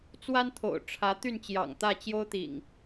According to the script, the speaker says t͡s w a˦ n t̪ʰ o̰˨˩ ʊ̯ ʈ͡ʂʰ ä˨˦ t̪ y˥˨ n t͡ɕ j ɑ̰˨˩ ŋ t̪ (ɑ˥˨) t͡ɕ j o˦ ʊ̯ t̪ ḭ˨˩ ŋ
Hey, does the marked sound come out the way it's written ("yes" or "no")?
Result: no